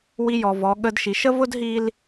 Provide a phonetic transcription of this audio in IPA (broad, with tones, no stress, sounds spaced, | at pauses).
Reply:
w i˧ j ɔ˨ v ɔ˨˦ ɠ ə˦ d ʃ i˨˦ ʃ ə˦ v ʊ˦ d ɦ i˦ l